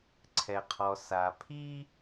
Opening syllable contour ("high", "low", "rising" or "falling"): low